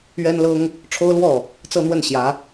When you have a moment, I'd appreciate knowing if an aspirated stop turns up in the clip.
yes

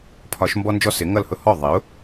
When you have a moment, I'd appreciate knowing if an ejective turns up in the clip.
no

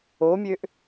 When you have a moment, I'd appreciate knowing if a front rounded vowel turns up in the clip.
yes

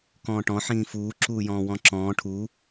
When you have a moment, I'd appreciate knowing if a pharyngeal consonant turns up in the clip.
yes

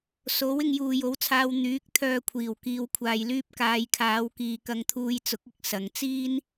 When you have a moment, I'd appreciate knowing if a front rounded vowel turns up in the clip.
yes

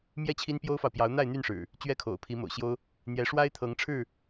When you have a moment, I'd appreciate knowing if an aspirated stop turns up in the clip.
yes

